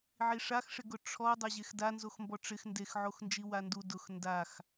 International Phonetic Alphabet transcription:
ʕiʂaxʂɪɡʊ ʈ͡ʂʰɔ dˤɛʑexda nzoxmbɔʈ͡ʂɪx ndexʕoxnd͡ʒi wandu dʊx ndax

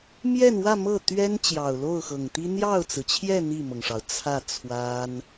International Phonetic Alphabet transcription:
mjɛ˥˧nwä˥˧ mɤ˥˩t̪ɥɛ˥n t͡ɕjɑ˨˩ʊ̯lo˥˩ʊ̯xɤ˨˩ŋt̪i˥ n̪jɑ˥˩ʊ̯t͡sɹ̩˩t͡ɕʰjɛ˥˧ n̪i˥˩mɤ˩ŋʂɑ˩ʊ̯ t͡sʰä˥˩t͡sʰwa˥n

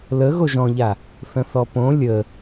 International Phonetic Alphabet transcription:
lə ɣoʒɔ̃ʎa | θə̃θɔpõ lʲə

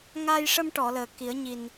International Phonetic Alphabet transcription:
ŋa˧jʂə˧mʈɔ˨˩˨ ləː˨˩ki˨˩˦ə̯ɲi˨˩n

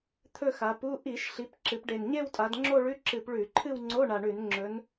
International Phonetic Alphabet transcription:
t̪ʰɵ˥˧xa˩˧pu˧˥˧ ʔi˧˩˧ʃ ɬi˩˧p ǁɨ˩˧pɖe˨˩n ɲe˥˧wtʼa˩˧d ŋ͡ǁo˥˧ɭʉ˧˥˧ ǁɨ˧˩˧p ɭʉ˧˩˧ǃʰɨ˥˧wŋ͡ǀo˧˥˧ ɳa˨˩ɳʉ˧˩˧n ŋ͡ǁɵ˩˧n

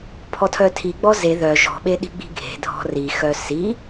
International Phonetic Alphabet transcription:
pʰɔtʰœtʰiɡ͡bɔ ze ðœ ʒɔ̤ɓe ɗi̤ɡ͡bi̤ɡʱe̤dʱɔ̤ rixœ si

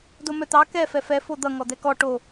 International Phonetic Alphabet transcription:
domœt̪ɑ kɛfɛ fɛfo d̪ʌŋɔd̪ɛ kɔ ʈo

